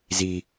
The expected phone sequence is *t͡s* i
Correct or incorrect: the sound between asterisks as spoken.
incorrect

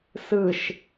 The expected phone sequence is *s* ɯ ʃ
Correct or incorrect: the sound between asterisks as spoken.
correct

